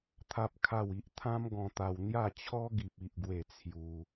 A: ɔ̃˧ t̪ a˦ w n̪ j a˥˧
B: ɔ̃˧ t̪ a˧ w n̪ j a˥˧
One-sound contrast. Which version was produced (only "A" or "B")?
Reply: B